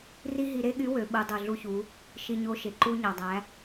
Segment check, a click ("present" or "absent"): present